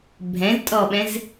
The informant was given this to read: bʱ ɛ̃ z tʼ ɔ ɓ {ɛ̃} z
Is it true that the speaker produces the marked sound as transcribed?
yes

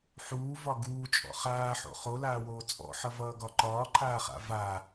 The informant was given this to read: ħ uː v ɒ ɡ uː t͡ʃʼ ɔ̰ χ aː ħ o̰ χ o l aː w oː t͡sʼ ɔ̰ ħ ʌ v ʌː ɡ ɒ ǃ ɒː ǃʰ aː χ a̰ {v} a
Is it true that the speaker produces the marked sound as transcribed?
yes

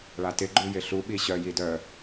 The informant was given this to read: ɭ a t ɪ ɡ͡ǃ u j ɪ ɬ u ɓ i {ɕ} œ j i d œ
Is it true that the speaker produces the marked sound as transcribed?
yes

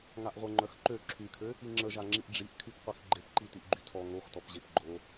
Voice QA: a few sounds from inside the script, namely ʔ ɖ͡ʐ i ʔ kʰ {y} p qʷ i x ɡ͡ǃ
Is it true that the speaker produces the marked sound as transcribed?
yes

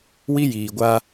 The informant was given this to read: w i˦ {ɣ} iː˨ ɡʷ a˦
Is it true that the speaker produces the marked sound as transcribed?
no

